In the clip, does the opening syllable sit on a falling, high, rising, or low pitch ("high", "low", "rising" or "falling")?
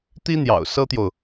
high